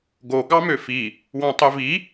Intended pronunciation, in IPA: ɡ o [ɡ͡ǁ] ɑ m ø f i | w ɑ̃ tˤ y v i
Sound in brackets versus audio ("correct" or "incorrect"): incorrect